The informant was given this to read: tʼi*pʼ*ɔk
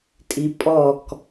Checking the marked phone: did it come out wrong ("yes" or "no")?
no